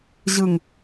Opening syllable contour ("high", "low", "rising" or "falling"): low